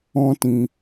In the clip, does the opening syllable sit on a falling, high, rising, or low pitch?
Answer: high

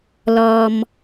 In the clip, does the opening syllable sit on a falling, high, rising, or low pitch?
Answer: low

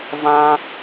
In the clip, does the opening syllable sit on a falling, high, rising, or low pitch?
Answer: high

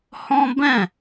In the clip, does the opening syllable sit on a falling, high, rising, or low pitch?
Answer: high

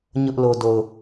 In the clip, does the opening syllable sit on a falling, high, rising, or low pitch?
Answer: high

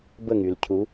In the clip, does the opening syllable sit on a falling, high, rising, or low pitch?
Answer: falling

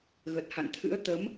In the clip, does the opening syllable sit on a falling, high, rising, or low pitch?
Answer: low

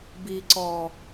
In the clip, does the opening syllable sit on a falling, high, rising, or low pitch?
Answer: low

